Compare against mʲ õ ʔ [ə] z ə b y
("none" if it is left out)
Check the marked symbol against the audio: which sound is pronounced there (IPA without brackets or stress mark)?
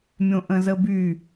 ə̃